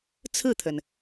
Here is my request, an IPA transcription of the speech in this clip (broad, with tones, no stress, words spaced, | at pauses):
t͡sʰɹ̩˥˩t̪ʰə˩n